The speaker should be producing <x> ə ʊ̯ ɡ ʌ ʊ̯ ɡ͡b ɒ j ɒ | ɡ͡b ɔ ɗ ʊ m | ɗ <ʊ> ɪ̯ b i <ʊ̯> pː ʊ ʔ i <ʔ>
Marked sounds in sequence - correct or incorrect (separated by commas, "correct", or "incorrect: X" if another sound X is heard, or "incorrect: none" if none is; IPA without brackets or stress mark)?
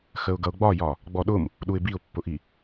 correct, incorrect: u, correct, incorrect: none